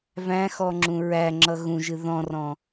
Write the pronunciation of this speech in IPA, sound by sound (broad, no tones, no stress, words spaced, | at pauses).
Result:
væ̃xɔŋ͡ǁũ ɹæŋ͡ǁʌ ɣũʒɨ ðɔ̃rɔ̃